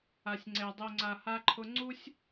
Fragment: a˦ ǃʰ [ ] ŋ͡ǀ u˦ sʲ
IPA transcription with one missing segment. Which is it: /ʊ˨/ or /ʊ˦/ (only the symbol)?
ʊ˦